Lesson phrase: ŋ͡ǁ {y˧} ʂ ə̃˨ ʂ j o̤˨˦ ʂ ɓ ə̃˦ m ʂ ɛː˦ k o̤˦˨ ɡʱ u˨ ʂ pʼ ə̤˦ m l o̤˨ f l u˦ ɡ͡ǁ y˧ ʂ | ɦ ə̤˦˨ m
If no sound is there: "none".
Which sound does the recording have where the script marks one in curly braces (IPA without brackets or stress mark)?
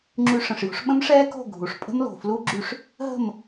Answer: y˧